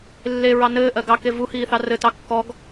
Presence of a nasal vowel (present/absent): absent